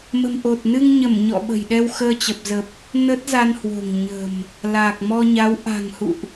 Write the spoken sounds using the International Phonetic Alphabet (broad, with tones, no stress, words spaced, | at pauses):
mə̤˨˩mʔo˨˩t̚nɨ˧ŋɲə˧˩m ɲɔ̰˧˨ɓə̤˨˩j ɗɛ˧wxəː˧t͡ɕə˨˩p̚zə˨˩p̚ | nə˦˥t̚za˧n hwo̤˨˩ŋɲə̤˨˩m | laː˨˩k̚mɔ˧ɲa˨˦w ʔa̤˨˩ŋhṵ˧˨ʔ